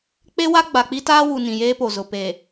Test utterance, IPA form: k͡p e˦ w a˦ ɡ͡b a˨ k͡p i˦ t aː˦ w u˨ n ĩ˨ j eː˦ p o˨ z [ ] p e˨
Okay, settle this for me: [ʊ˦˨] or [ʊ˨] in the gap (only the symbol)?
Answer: ʊ˨